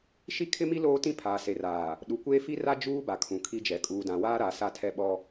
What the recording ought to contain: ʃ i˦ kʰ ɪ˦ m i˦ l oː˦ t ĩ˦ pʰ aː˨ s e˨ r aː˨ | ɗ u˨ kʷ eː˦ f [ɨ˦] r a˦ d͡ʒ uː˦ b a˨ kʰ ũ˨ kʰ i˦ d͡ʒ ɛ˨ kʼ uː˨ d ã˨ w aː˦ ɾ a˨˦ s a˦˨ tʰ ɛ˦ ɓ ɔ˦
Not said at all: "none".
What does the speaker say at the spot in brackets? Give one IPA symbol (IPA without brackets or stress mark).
i˦